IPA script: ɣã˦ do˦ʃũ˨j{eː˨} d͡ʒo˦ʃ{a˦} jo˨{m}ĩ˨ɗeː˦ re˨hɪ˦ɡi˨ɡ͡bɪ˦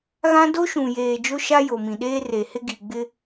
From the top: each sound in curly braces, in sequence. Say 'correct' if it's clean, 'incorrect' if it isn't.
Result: correct, correct, correct

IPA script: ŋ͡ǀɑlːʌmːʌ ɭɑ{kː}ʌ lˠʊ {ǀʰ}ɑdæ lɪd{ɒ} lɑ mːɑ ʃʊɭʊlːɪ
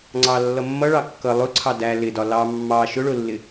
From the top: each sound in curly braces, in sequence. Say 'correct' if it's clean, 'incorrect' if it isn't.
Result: correct, correct, correct

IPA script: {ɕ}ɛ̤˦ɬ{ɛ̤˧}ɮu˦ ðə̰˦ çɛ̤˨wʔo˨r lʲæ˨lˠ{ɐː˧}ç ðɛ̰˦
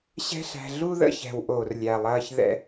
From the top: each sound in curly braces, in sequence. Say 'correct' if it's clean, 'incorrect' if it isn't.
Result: correct, incorrect: æ̤˧, correct

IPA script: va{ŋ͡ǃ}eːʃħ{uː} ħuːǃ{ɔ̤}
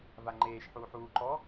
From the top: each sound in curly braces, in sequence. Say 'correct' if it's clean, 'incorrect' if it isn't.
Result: correct, correct, incorrect: ɔ

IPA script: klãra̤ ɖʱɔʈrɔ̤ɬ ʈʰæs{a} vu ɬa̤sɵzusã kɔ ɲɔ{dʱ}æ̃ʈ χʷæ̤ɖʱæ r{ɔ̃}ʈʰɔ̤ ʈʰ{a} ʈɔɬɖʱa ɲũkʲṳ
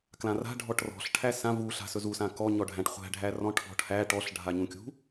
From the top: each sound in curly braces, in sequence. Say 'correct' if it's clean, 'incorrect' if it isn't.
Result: incorrect: ã, incorrect: ɖʱ, correct, incorrect: æ

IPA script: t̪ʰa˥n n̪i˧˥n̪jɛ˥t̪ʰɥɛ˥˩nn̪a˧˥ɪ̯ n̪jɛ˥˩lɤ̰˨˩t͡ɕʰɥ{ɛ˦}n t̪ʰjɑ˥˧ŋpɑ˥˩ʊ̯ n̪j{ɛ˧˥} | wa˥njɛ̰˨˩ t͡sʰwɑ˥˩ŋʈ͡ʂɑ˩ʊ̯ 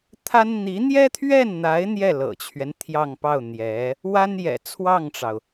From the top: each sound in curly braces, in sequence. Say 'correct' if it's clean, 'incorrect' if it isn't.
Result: correct, correct

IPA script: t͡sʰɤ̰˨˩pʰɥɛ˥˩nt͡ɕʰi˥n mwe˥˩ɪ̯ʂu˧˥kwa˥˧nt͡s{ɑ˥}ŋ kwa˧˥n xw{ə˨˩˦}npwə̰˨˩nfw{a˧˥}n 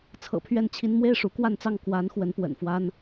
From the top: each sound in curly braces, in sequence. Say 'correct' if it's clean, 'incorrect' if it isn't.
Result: incorrect: ɑ˥˩, incorrect: ə˧˥, incorrect: a˥

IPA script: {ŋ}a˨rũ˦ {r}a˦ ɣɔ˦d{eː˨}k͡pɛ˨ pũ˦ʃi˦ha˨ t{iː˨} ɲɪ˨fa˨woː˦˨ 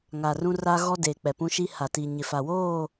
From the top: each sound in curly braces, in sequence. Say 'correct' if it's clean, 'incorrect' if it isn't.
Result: correct, correct, correct, incorrect: i˨

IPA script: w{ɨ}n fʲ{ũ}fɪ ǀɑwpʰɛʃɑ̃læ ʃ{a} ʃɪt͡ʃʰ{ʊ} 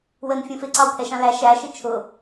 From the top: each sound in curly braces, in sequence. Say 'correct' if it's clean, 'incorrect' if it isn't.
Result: incorrect: ə, correct, incorrect: æ, correct

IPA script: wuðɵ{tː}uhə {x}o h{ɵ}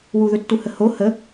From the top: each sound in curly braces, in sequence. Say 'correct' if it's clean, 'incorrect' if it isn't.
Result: correct, incorrect: h, incorrect: ə

